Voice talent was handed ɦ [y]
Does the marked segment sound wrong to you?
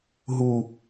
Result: yes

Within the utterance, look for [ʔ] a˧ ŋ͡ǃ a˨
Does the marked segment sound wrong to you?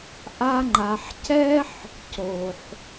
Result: no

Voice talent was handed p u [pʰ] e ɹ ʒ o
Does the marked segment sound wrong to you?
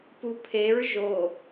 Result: no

